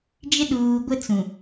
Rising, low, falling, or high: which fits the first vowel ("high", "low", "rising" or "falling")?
high